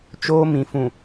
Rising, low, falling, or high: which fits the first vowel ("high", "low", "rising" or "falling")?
high